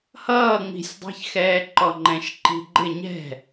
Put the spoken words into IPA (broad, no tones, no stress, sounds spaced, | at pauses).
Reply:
h ʌː ŋ͡m i̤ sʲ dˤ i̤ ç x ɛː ǃ ɔ ŋ͡ǃ ɛ̃ ʃ ǃ i̤ ɡ͡ǃ ɪ ɲ ɛ̤